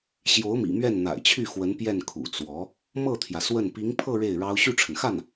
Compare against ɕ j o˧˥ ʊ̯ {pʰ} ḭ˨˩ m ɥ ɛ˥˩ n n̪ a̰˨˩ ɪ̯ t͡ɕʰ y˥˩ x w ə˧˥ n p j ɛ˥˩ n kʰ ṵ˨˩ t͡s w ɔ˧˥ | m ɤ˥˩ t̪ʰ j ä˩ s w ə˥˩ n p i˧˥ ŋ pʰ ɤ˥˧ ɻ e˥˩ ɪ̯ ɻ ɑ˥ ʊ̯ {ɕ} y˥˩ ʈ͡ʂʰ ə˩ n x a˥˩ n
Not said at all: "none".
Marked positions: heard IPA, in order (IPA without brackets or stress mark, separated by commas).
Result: m, ɕ